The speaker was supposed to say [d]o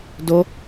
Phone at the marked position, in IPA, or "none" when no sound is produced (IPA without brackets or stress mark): d